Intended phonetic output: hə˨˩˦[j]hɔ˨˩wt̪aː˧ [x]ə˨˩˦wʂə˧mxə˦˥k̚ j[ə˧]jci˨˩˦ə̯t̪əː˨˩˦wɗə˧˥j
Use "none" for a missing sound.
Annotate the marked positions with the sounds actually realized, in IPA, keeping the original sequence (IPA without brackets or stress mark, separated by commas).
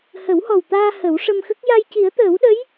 w, h, a˧